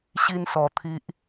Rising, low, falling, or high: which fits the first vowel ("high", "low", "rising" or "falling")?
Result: high